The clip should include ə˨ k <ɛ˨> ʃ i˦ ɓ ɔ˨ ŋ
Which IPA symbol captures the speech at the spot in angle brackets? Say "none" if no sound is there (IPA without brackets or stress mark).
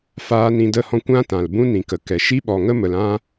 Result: ɛ˨